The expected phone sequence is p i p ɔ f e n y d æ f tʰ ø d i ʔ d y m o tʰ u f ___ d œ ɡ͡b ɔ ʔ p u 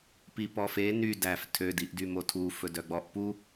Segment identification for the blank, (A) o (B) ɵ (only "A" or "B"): B